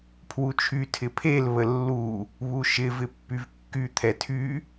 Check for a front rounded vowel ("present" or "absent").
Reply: present